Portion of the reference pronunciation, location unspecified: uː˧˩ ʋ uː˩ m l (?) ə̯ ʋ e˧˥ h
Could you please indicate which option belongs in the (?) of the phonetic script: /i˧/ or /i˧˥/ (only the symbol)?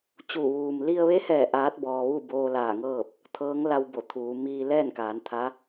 i˧